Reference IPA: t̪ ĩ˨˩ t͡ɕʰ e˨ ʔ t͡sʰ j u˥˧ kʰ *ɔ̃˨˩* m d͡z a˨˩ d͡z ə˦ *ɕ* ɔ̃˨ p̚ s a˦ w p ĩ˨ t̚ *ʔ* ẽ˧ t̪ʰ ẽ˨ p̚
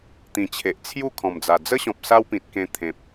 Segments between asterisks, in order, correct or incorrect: correct, correct, incorrect: k

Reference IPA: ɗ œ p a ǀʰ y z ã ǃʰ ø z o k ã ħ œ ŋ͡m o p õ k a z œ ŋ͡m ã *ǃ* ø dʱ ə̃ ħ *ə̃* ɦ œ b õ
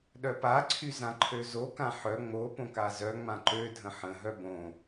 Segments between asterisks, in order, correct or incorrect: correct, correct

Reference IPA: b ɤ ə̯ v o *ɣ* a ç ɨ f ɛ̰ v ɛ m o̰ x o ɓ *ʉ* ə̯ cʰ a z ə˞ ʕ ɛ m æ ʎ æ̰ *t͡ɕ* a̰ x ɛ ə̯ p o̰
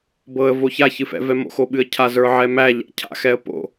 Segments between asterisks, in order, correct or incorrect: incorrect: ç, incorrect: ɨ, incorrect: cʰ

